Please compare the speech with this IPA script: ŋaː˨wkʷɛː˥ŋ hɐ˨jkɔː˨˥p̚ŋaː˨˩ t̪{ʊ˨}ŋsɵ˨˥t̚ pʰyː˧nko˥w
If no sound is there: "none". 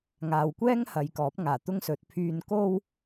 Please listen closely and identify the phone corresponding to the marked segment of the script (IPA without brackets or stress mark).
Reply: ʊ˥